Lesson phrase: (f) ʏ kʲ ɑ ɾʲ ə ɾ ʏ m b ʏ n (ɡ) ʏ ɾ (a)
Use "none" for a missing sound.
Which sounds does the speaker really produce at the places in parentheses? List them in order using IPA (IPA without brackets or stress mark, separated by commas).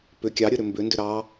p, d, ɑ